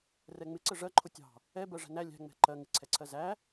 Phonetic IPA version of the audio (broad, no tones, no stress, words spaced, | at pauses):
rɛŋ͡mɪ ǀəʐɜǃʰʊ tʲɑ̤ | ɛ bɜʐæ̤næ lʲæ̤ŋ͡mɛ̤ ǃɜ ŋɪǀʰɛǀʰɜ zæ